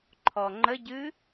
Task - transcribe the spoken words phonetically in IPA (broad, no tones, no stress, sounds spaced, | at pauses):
ǃʰ ɔ ŋ͡ǃ ə ɟ ɨ